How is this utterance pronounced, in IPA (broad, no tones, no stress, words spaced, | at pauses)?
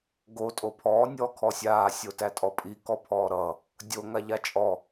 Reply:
ɡo tʼopʰɔː nʲɔːkʰɔsʲaː sʲotætʼɔpʼi kɔpʰɔːɾʌ | dʲo ŋaʎat͡ʃʼɔ